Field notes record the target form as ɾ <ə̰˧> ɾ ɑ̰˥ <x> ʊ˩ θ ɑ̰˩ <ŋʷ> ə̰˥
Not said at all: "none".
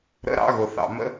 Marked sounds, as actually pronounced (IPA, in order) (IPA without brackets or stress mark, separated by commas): ə̰˧˥, ɣ, m